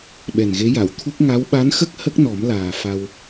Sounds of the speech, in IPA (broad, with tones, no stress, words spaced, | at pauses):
ɓɛ˨˩nɣe˧˥ ja˨˩˨wt̪ʰu˦˥k̚ ŋa˧˥w ɓa˧˥nxə˦˥k̚ hə˦˥k̚ nɔ˨˩˦mlaː˨˩ fa˧w